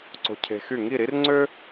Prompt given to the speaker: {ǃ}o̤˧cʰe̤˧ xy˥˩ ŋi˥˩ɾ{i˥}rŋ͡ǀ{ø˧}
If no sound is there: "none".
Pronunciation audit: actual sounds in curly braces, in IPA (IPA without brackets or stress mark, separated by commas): ǀ, i˥, ø˥